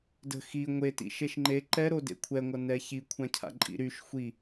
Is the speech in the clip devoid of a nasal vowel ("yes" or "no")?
no